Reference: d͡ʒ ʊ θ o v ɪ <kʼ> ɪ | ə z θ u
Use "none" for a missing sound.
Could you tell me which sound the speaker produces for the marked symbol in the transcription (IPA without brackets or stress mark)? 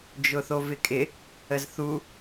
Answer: kʼ